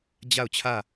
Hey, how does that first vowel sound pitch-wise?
falling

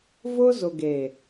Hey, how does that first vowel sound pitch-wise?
high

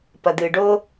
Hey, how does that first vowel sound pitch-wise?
low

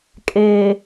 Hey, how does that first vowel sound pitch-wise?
low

